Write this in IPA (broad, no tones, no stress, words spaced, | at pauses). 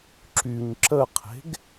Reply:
ǁyɲ ǁəqʰe̤ɡ